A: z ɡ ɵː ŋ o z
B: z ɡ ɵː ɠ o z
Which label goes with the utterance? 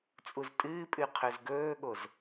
B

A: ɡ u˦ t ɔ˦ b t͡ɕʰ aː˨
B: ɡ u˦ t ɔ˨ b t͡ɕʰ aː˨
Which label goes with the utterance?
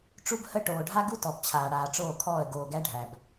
B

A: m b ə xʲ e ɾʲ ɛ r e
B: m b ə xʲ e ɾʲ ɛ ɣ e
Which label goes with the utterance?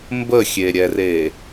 A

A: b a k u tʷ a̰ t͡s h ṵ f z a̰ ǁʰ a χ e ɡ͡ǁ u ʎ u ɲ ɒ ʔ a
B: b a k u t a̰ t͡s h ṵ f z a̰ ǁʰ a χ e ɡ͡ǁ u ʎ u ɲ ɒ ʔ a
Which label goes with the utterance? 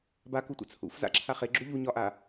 A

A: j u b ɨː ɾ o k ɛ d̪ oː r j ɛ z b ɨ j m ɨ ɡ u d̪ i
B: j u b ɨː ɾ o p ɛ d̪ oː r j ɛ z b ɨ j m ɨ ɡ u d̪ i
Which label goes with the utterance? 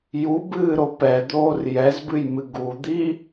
B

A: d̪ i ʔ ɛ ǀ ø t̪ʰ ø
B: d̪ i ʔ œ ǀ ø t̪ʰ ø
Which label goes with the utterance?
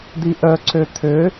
B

